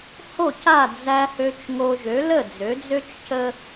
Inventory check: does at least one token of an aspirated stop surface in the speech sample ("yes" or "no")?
no